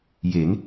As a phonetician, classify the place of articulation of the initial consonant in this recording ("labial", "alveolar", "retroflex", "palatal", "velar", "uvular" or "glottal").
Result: palatal